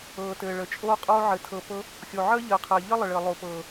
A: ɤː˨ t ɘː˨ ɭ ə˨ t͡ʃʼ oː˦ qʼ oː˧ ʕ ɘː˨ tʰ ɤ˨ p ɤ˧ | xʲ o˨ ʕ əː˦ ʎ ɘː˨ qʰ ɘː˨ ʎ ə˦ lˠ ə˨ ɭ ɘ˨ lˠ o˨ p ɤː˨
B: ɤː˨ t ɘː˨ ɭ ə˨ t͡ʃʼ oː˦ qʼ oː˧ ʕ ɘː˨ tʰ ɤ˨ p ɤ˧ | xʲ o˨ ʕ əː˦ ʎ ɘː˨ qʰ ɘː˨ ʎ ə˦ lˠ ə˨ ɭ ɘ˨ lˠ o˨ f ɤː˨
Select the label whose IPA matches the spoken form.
A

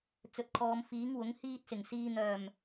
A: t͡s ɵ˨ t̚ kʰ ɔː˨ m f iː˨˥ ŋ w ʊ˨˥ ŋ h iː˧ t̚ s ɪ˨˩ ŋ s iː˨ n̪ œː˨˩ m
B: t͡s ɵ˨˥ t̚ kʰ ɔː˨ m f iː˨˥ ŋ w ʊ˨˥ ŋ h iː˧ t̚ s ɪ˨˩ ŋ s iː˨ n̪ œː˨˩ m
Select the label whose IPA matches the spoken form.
A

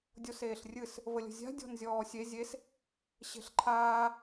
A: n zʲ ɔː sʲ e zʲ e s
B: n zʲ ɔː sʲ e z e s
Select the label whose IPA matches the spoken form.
A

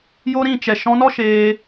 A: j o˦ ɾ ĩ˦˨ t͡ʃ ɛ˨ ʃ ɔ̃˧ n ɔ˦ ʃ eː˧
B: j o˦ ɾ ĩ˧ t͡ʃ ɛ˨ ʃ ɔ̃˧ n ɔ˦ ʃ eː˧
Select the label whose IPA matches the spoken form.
A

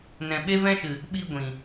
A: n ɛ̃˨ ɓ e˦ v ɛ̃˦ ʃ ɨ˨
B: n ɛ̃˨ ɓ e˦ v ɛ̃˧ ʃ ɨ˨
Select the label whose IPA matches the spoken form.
A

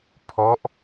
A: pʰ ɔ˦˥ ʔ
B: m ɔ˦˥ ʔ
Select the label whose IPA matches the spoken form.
A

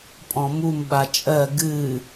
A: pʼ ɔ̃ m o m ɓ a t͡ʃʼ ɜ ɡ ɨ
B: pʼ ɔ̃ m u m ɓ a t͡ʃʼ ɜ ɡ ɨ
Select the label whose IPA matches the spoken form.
B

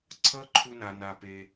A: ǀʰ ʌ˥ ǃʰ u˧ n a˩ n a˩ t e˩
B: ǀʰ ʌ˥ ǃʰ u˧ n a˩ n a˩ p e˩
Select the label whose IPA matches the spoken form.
B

